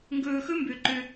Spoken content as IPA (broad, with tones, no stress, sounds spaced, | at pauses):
ŋ ɡ ɵː˨ x ɵ˦ m b ø˨ ǃ ø˦